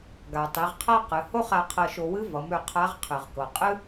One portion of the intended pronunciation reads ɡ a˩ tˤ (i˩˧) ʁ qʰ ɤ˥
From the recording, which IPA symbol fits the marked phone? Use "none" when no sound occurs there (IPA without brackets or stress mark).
i˩˧